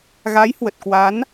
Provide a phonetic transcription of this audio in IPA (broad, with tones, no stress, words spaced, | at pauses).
ɣa˨˦jhwə˨˩t̚kwa˨˦n